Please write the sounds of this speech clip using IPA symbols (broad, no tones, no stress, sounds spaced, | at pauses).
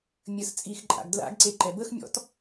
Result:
mʲ ə s t͡sʼ i x ǃʼ a̰ ɡ d l a̰ ɡ ǀ e ǃ ɛ b ə x mʲ ɔ̰ t